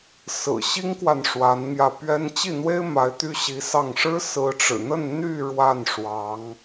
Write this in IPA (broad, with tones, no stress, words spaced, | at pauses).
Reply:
sɹ̩˨˩ɕi˥ŋkwa˨n ʂwa˧˥nmjä˧ pɥɛ˥n t͡ɕi˥˩n̪we˥ɪ̯ ma˧˥ɪ̯t̪y˥ɕi˧˥sɑ˥˩ŋ ʂɻ̩˥ sɹ̩˧˥ʈ͡ʂɻ̩˨˩n̪ə˥˧n n̪y˥˧ ɻwa˥˩n ʂwɑ˧˥ŋ